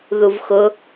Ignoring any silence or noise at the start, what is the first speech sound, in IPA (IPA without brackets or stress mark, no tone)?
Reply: ð